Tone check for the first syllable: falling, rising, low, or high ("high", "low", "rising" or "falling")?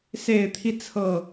low